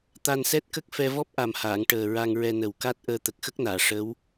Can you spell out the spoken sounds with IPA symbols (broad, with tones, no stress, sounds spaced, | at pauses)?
t̪ a˧ n s ɛ˦˥ t̚ k ə˦˥ k̚ f ɛ˧ v ɔ˦˥ p̚ ʔ a˨˩ m h aː˨˩˨ ŋ ʈ əː˨˩ ɹ a˧ ŋ ɹ ɛ˧ n ə˨˩ w k a˦˥ t̚ ʔ əː˧ t̪ ə˨˩ k̚ x ə˦˥ k̚ n aː˨˩˨ ʂ ə˧˥ w